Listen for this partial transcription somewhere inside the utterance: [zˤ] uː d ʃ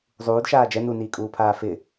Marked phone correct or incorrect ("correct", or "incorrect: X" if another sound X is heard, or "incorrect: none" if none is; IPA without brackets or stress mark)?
correct